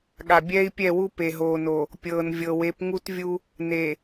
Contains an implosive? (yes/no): yes